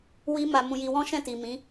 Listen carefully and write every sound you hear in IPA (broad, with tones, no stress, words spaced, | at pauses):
wi˦ma˧mũ˧ji˧ wɔ̃˦ʃɛ̃˦˨ti˨ mĩ˨˦